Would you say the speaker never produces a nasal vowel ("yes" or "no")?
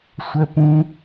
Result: no